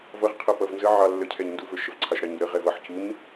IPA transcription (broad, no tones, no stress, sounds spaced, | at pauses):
v ʌ ʁ qʰ ʌ p ʌ v n z ə ʕ ɑ lː ə cʰ ɛ ɲ n d u v ə˞ ʃ ə v ǀʰ ɑ ʃ ɾ ɑ ɲ u ɾ ə ʁ ɛ v ʌ ħ c u ɲ